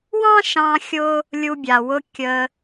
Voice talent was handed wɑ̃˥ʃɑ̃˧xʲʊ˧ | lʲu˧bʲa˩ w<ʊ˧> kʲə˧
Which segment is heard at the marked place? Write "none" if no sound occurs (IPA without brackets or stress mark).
ʊ˧